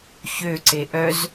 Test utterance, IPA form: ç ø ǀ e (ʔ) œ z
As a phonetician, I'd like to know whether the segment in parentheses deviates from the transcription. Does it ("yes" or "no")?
no